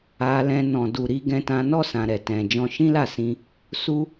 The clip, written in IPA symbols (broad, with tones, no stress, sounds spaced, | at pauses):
a˧ l ɛ̃˧ n ɔ̃˨ d u˨ ɾ i˧ ɡ ɛ̃˧ t ã˧ n ɔ˦ s ã˧ ɾ ɛ˨ t ɛ̃˧ d͡ʒ ɔ̃˧ ʃ ĩ˦ l a˦˨ s ĩ˧ | s u˦